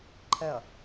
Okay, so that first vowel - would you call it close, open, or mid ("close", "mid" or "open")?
mid